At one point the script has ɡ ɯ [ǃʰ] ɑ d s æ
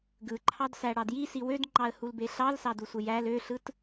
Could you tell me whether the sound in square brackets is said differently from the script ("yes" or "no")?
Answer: no